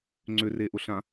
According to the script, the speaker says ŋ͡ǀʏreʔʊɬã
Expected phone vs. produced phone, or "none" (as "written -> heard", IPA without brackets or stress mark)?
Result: none